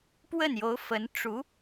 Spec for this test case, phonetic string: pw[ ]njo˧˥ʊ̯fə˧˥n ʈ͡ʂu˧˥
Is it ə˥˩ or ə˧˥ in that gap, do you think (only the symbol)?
ə˥˩